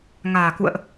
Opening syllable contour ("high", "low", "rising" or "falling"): low